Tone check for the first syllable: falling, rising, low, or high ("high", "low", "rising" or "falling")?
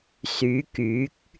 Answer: rising